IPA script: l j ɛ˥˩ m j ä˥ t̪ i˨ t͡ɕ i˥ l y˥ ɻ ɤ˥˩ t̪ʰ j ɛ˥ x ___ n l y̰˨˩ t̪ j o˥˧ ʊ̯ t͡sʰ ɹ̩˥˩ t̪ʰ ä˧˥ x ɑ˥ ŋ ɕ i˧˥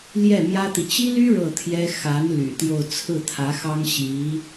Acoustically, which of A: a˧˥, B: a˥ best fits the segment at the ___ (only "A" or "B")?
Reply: A